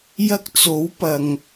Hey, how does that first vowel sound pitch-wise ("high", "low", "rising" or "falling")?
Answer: high